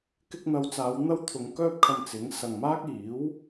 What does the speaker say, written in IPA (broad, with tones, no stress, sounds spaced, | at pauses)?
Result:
k ɪ˧ k̚ n̪ ɐ˨ w t͡s aː˨˧ w n̪ ɐ˥ w t̪ʰ ʊ˨˧ ŋ k œː˥ p̚ kʰ ɐ˧ m t͡s ɪ˨˥ ŋ s ɐ˨ ŋ m aː˥ k̚ iː˨˥ w